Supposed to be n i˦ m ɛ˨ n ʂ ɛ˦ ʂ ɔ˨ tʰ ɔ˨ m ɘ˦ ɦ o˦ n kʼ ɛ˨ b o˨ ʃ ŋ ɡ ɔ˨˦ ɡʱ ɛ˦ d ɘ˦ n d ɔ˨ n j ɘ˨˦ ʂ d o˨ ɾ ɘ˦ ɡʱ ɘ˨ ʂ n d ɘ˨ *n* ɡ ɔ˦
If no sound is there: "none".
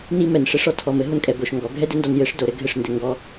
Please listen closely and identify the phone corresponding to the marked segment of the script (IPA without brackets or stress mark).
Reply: ŋ